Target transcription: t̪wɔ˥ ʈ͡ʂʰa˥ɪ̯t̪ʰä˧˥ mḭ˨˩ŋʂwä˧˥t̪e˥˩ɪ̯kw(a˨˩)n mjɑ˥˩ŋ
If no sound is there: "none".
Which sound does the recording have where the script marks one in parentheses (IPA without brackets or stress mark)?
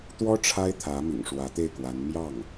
a˧˥